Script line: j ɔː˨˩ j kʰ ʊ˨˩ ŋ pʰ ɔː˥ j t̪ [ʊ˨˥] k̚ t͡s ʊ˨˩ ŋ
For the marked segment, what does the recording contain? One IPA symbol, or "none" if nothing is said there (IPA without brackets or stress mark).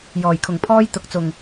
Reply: ʊ˨˥